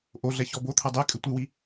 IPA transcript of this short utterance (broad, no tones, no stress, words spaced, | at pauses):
ʔoɮɛ çɔbot̪ʰɐ dˤe kʼɨtʷɨwi